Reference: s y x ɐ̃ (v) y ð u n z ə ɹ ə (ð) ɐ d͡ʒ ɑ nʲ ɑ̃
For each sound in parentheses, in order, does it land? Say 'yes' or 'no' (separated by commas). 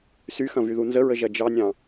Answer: yes, no